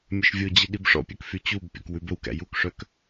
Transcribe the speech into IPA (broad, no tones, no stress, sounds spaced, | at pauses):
mʲ ɵ ʃ vʲ o d͡ʑ i ɗ i b ʂ ɔ̰ pʲ œ k f y t͡ɕ u b pʲ ɔ̰ k w ʉ b ɵ w k æ̰ j u k ʂ œ k